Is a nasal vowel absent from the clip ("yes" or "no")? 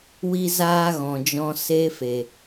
no